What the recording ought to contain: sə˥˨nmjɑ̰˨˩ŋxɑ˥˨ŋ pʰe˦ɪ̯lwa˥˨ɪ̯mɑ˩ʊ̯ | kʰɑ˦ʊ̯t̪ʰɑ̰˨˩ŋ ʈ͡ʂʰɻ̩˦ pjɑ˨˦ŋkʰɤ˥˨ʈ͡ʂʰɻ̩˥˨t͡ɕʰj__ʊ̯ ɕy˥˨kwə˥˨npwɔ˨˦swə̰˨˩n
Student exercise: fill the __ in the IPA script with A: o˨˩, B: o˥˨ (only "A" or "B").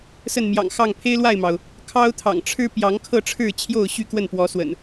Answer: B